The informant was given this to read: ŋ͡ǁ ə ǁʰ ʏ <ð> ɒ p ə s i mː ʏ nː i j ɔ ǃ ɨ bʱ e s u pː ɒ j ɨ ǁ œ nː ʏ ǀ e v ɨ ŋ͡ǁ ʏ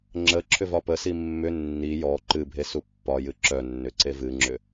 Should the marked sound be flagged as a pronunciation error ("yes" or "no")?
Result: yes